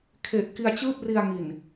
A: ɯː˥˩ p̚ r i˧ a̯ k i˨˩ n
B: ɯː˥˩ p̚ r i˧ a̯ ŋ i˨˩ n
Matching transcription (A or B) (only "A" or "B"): B